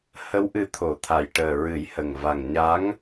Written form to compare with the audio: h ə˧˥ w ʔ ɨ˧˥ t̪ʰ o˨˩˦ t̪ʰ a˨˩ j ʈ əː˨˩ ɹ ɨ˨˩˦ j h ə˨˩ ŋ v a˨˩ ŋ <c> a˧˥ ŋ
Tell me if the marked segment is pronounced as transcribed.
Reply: no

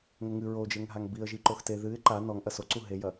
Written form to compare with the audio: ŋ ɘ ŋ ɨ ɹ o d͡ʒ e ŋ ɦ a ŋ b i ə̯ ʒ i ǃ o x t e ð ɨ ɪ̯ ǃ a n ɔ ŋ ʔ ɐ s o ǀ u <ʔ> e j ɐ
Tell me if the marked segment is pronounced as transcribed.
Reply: no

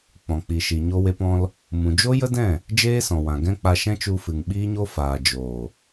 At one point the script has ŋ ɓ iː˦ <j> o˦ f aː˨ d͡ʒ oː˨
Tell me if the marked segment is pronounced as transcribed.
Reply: no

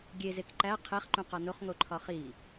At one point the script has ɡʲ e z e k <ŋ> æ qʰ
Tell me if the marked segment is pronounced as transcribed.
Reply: no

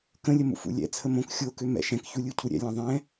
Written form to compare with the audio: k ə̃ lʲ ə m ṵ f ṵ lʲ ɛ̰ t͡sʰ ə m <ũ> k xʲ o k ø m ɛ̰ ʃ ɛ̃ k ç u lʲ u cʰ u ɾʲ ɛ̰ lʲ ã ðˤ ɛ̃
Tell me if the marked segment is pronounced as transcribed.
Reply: no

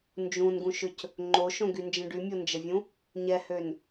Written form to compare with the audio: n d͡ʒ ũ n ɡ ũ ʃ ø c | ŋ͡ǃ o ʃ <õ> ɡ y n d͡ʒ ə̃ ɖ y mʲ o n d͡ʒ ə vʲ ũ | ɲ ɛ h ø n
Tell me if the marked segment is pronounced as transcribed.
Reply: yes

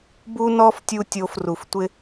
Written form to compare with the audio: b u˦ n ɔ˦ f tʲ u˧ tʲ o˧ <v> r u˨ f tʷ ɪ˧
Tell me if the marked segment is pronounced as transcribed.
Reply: no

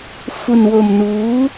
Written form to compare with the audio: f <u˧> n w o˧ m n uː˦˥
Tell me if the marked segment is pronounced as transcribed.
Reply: yes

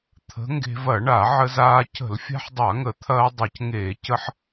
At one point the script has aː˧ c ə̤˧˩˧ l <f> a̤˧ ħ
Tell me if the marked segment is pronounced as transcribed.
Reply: no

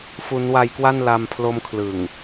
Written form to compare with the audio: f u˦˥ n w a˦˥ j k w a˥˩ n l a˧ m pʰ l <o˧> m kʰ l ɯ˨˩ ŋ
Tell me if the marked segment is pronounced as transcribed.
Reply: no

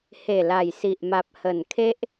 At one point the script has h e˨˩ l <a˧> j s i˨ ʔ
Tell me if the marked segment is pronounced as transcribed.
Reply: no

